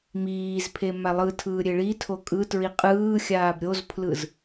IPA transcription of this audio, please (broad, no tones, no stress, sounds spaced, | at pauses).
m iː z pʰ e m a lˠ ɯ tʰ ɯː ɾʲ e ɭ i tʰ o kʼ ɯ t ɹ i qʼ ɯː xʲ aː b ɾʲ o z pʰ l ɯ z